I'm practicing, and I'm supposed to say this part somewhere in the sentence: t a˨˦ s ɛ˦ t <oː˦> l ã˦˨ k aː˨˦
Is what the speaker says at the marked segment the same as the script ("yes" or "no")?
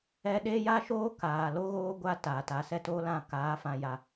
yes